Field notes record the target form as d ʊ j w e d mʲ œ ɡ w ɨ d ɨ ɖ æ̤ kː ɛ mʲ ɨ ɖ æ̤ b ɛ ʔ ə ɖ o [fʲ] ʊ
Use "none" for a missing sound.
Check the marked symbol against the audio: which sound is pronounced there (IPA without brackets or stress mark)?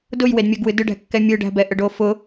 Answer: f